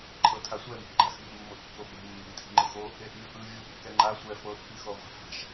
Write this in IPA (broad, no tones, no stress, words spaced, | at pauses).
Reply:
ǃʰɤtʰasʷɛme̤ʔ ɡ͡ǃaxɓe̤ʔmːɤʔkːo ɓe̤ mːe̤mtʰi̤ŋ͡ǃɯxo | eʔmʲɔʔɯ vʲu kːɛŋ͡ǃa sʷɛ fɤʔpixo ʁʷa̤fa̤ʃ